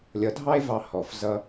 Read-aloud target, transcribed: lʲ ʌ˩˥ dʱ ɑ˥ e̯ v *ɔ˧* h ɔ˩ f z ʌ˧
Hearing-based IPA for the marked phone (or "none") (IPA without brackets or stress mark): ɑ˧